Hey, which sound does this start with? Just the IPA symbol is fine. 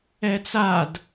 ɛ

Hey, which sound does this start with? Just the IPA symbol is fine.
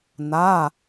n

